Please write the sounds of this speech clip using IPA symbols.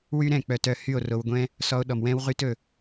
wy˦ ɾɛ̃˦˨k͡pœ˧t œ˦˨hy˦˨o̯ ro˧wɡʷɛ̃˦ | sɔ˧o̯ɗɔ˨m wɛ̃˦w ʁy˦tɵ˧

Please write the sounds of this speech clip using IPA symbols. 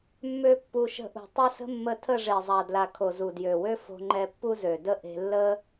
mːø˦pːu˧ ʃə̤˧ʔṳ˨tˤa˦sə̤˦ mːə˧tʰə˦˨ ʐe˨zˤa˨dla˨ kʰo˨zu˨djø˨wø˦ fo̤˧ŋ͡ǃɛ˧ pːu˦zø˨də˦ ʔe̤˧lːə˦

